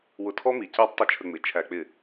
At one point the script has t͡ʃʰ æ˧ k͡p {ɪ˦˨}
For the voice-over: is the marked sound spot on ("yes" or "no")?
yes